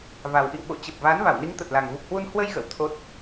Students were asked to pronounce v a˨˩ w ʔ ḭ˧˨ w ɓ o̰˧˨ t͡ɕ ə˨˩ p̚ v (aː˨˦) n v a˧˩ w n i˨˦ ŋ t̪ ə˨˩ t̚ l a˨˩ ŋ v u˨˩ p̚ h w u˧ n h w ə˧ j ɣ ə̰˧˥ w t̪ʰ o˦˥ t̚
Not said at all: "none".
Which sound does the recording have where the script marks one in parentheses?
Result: aː˨˦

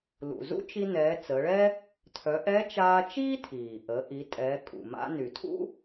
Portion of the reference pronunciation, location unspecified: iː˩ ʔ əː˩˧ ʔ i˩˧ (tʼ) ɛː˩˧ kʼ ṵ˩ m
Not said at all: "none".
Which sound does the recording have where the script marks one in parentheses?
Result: tʼ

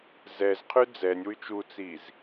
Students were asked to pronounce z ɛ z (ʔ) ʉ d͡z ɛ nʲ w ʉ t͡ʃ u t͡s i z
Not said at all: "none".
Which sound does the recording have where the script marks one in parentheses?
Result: qʰ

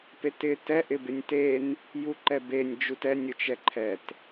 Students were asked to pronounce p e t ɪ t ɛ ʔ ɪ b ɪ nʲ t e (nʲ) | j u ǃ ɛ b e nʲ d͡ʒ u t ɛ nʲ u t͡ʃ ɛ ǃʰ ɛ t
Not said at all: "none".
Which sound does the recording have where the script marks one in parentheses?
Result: n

